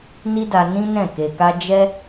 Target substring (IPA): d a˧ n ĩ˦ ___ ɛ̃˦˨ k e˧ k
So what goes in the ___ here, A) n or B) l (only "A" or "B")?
A